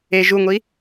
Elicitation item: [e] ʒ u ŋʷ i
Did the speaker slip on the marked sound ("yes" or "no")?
no